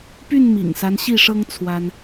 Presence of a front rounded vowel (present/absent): present